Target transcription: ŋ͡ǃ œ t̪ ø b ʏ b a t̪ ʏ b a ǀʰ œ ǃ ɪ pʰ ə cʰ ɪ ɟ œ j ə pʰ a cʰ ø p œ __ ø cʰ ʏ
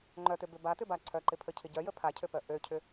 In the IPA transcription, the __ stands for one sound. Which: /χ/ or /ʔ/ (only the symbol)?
ʔ